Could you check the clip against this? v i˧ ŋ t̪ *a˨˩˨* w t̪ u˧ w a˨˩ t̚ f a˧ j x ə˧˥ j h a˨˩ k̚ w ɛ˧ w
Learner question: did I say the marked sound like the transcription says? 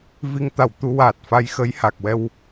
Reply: yes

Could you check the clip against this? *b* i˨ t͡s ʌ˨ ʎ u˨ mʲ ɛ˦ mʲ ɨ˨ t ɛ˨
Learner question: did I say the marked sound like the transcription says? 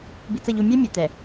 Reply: yes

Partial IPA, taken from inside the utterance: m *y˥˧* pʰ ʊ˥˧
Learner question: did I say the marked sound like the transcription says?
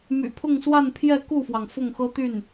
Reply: no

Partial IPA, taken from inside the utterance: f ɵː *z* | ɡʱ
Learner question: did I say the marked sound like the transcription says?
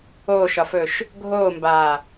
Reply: no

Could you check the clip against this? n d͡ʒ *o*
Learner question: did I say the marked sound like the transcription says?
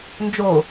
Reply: yes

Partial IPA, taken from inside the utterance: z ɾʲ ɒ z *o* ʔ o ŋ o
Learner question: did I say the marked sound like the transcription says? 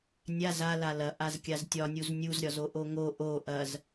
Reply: yes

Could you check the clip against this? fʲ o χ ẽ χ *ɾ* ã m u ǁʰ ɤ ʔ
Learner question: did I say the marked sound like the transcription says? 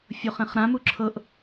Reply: yes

